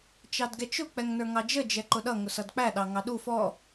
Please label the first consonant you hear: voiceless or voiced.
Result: voiceless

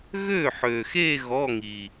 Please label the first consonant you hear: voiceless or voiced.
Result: voiced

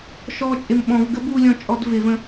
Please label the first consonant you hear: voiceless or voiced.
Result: voiceless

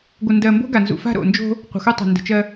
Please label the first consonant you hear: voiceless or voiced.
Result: voiced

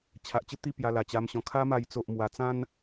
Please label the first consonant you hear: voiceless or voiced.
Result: voiceless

